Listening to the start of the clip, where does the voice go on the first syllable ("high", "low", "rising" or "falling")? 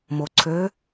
low